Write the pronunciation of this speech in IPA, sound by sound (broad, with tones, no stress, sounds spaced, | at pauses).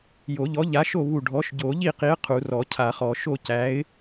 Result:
j o˨˩˦ ʎ ɔ˨˥ ʎ a˨˥ ʃ o˥˨ β u˧˩ ɖʱ ɔ˨˥ ʃ ɟ o˨˩˦ ʎ i˥˨ q i˨˥ ə̯ qʰ u˨˩˦ r ɔ˨˩˦ cʰ a˨˩˦ χ ɔ˨˩˦ ʃ o˥˨ c æ˨˥ ɪ̯